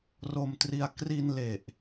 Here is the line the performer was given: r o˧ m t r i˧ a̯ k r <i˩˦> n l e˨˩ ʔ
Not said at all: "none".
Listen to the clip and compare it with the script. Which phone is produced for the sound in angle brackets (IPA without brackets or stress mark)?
i˧